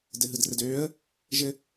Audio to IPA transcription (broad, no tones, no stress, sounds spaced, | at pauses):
d ɘ ɦ ɯ d r ɘ d øː ə̯ | ʒ ɘ